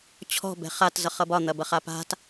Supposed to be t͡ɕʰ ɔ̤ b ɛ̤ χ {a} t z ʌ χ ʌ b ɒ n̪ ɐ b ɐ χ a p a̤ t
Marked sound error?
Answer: no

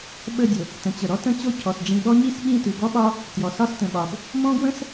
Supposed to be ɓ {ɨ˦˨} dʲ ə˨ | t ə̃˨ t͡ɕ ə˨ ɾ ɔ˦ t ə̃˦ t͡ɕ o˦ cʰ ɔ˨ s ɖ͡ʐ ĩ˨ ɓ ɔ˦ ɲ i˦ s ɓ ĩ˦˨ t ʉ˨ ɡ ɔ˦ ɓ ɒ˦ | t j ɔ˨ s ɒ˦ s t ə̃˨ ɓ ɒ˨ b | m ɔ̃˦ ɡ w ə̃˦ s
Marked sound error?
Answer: yes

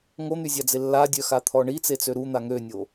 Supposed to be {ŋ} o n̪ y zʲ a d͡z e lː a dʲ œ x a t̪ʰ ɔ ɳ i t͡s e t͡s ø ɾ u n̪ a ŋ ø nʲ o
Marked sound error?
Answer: no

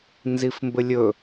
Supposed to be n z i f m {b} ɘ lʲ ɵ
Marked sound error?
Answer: no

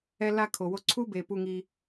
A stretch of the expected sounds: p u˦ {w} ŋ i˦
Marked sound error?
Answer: yes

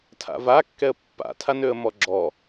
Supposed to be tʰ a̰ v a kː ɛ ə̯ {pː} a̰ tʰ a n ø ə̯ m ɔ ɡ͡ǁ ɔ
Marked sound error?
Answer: no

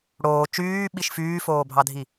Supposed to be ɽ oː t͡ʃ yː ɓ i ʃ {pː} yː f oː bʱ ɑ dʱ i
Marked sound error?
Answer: yes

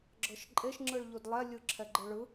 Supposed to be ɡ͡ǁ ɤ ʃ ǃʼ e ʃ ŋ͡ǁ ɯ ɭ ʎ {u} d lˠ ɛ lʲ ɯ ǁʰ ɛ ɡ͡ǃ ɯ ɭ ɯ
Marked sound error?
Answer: no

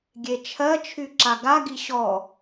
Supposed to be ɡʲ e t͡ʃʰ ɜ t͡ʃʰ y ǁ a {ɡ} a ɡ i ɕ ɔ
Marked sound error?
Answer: no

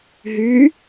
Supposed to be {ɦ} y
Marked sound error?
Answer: no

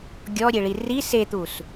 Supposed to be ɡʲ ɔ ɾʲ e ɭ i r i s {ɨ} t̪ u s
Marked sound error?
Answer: yes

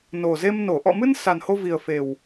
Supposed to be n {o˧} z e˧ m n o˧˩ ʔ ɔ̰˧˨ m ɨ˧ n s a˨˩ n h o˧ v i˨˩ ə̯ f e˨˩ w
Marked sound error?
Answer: yes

